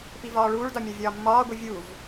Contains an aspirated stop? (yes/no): no